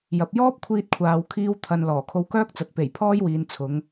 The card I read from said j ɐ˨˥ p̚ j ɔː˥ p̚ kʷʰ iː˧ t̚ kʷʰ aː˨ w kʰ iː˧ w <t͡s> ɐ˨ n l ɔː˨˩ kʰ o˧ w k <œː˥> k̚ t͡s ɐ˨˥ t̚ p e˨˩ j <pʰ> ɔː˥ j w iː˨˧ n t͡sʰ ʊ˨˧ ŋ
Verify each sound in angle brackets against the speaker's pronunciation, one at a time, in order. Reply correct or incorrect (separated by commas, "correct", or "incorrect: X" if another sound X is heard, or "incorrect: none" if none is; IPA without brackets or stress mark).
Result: incorrect: t̪ʰ, correct, correct